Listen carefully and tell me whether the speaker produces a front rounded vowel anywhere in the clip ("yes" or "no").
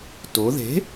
no